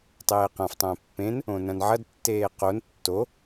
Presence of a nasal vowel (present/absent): present